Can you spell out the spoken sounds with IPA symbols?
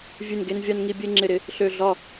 vʲ ʉ˧˩ n ɡ e˧ n vʲ a˧ n ŋ i˧ bʲ e˥˧ ŋ͡ǁ ɪ˧˩ ɾ ɪ˧ | ɬ ø˧˩ ɮ ɒ˧˩

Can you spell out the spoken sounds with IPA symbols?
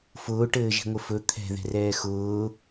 f ʊː ʈ ɘː ʒ i̤ ŋʷ ɘ f ɵ t̪ʰ ɛ̤ ð ɛ̤ r ɛː x ʊː

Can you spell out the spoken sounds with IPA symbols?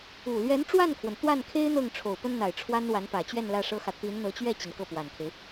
u˨˩ l ɥ ɛ˧˥ n ʈ͡ʂ w a˥˩ n kʰ w ə˩ n t̪ w a˥˩ n kʰ e˥ ɪ̯ n̪ ɤ˥˩ ŋ ʈ͡ʂʰ o˨˩ ʊ̯ p ə˥ n n̪ a˨˩ ɪ̯ ʈ͡ʂʰ w a˥ n w a˧˥ n p ä˨˩ t͡ɕ ɥ ɛ˥˧ n l ä˥˩ ʂ ɤ˥ x ä˨ t̪ i˧˥ n n̪ ɤ˧˥ t͡ɕ ɥ ɛ˥˩ t͡ɕ i˩ n k ɤ˥˩ p w a˨˩ n kʰ e˦ ɪ̯

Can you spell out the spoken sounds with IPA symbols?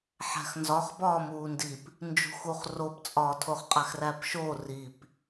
ħ æ̤ x n z ɒ χ b ɒː m uː n d i p | n d͡ʒ ṳ x u χ r o p t͡sʼ ɒː tʰ o χ qʼ æ x r æ p ʃ o r i p

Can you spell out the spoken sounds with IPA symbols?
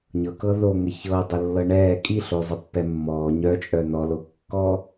ɲ ɤ k ɤ ð o ŋ ə ç ɤ dˤ ə lː ɤ ɳ ɛː kʼ i ɬ o zˤ ə pː ɛ mː ɔː ɲ œ t͡ʃʼ œ n ɔ l o kː ɔ

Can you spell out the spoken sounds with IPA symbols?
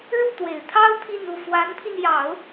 ɻ u˥˩ t̪ w e˨˩ ɪ̯ t̪ʰ ɑ˥ ʊ̯ t̪ʰ i˥˧ n u˥˩ f w a˧˥ n pʰ i˧ n j ɑ˨˩˦ ʊ̯

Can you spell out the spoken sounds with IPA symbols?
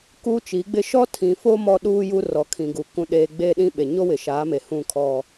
k u˦ t͡ʃ i˨˦ ɡ͡b ɪ˦ ʃ ɔ˦ tʰ ĩ˨ f o˦ m ɔ˦ ɗ uː˦ j u˦ r ɔ˨ kʰ ĩ˨ ɡ u˨ k ũ˨ ɗ eː˨ ɡ͡b eː˦ ɗ ĩ˦ ɓ e˨ ɲ o˦ w ɪ˨ ʃ aː˨˦ m e˨ h ũ˦˨ kʰ ɔ˨

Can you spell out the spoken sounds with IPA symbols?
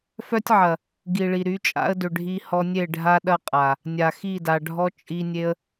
f œ˦ tʲ ʕ ɐ˨ | ɡ i˨ ɭ i˨ ɾ y˨˦ t͡ʃʼ a̰˦ ə̯ d ʏ˨ ɖʱ i˧ h ɔ˧ nʲ e˦˨ ɖʱ a˦ ɗ ɐ˦ qʼ a˨ | nʲ a˨ x i˦˨ d a˨ ɖʱ ɔ˦ t͡ʃʼ i˧ nʲ e˦ ə̯

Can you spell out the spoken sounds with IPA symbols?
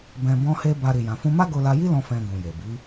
b ɛ̃˧ b ɔ̃˦ h e˦ b a˧ ɾ i˨ j ã˨ f ũ˧ m a˦ ɡ o˧ l a˧ j i˦ l ɔ̃˧ f ɛ̃˧ ɡ ũ˨ j e˨ b i˨˦

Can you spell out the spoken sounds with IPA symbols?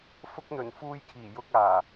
f ʊ˧ k̚ n̪ ɵ˨˩ n f uː˧ j kʰ iː˨˩ j ʊ˧ k̚ aː˨˩

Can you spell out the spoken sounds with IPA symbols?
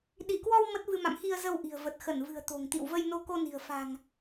ɗ i˧˩ k w ɔ˧ w m ə˦˥ t̚ v ɨ˧ m a̰˧˨ m x i˧ ə̯ z ə˧ w ʔ i̤˨˩ ə̯ v ə˨˩ t̚ x ə˧˩ n v ɨ̤˨˩ ə̯ t̪ o̤˨˩ ŋ t̪ ḭ˧˨ w v ə˧ j n o˧ k o˧ n i̤˨˩ ə̯ f a̤˨˩ ŋ

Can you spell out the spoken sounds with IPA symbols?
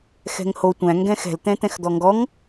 x ɛ̤ ŋ h o tʷ æ̃ ŋ ɡ ɛ̃ x ɛ̤ l t̪ ɛ̃ t̪ ɛ̃ x d̪ ɔ ŋ ɡ ɔ ŋ

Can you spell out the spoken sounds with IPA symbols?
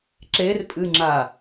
ǁ e r pʼ ɨ ŋ͡ǁ a

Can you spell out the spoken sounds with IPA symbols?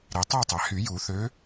ɾ i˩ tˤ æ˥˨ tˤ æ˩ h y˨˩˦ j u˨˩˦ θ ø˨˦

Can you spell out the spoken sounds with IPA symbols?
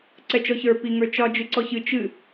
ǀ ɛ t͡ʃ ɔ ç ə˞ p i ŋ ə˞ t͡ʃ ɒ d͡ʒ ɨ ǀ ɔ ç ɨ t͡ʃ ɨ

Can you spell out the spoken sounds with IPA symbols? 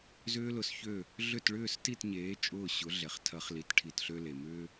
z ʏː˦ l ʊ˧ s ç ø˦˨ | ɮ ʏ˦˨ t ɭ ʏː˦˨ s t i˦˨ t ɲ eː˨˦ t͡ʃʼ ʊː˦˨ ɕ ʊ˨˦ ɮ ɛ˨ χ tʰ ɐ˨˦ χ l i˨ t ʈʰ i˨ t ɬ ø˧ l e˨ m ʏː˦

